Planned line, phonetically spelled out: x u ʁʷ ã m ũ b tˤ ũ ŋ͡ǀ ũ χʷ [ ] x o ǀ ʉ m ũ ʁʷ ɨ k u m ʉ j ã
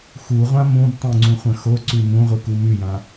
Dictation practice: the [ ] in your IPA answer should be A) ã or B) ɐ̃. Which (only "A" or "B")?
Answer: B